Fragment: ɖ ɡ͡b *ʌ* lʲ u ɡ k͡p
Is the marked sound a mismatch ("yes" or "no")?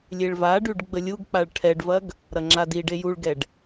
yes